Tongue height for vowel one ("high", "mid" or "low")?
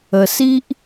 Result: mid